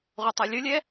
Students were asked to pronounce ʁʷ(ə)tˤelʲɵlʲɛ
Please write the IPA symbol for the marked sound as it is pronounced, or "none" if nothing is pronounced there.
ə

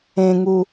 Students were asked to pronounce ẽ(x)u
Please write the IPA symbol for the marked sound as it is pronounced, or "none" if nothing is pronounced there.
ŋ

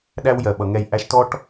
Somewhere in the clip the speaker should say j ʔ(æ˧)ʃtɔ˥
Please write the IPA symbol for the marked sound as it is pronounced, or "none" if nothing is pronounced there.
æ˧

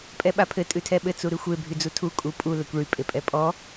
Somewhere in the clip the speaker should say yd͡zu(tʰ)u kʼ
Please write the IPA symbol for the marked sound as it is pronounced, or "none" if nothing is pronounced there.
tʰ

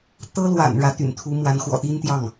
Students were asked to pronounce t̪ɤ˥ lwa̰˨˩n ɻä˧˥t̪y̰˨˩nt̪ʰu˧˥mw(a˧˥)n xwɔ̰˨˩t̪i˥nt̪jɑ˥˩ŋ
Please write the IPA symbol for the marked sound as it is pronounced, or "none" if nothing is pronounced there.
a˧˥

